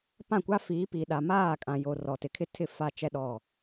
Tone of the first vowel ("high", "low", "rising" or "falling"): falling